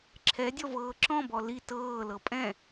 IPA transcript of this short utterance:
ǁʰɛdʲɔvɤː ǁɔ̃bɔ li tɤːlɤ pʼɛ̃

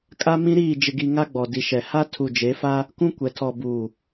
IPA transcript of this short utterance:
kʼa˦mĩ˦ɾiː˦˨ d͡ʒɪ˦ɡi˦ ŋa˦ɡ͡bɔ˨ di˨ʃɛ˨ ha˦ tʰu˨d͡ʒe˨˦fa˦ | kũ˦kʷɛ˨tʰɔ˨ buː˨

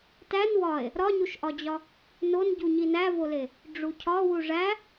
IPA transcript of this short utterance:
tæn wɒe̯ | ɾɒɲuʃʔɒd͡ʑɒ | nonɟu ɲinævole | ɖ͡ʐucʰɒ wuʐæ

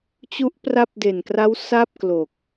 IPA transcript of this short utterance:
t͡ɕu˦˥ʔpra˦˥p̚de˨˩nkra˦˥w sa˥˩p̚klo˨˩k̚

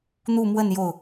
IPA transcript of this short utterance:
n̪u˥˧mwə˥˧n jo˥˩ʊ̯

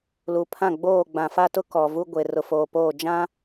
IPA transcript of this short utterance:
lu˨pʰã˦˨ɡ͡boː˦˨ ɡ͡bã˨fa˦tʊ˦ kɔ˨vu˦ɡʷe˨ rʊ˨foː˨poː˦˨ d͡ʒã˦

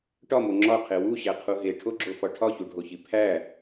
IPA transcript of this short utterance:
ʈɒmo ŋ͡ǁɒqʰe wuɕæqʰu ɦeʈʰoɡ͡ǁofɒ ʈʰɒçuɖʱoçi pʰæ

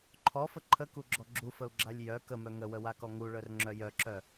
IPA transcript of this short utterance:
ǃʰɔfə ǃʰəkuɡ͡ǁɔ ɡ͡ǁufəu̯ɡ͡ǁalʲ jœ kəmœ ŋəwəwakɔ ŋuɭœrŋ͡ǁœ jœǁœ

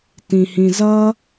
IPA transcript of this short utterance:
tĩhĩzʌ

